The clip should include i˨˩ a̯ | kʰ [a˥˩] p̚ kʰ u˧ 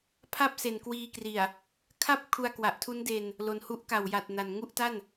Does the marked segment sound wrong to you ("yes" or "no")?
no